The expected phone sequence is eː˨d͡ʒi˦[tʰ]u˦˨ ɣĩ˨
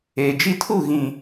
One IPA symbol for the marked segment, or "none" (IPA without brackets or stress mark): tʰ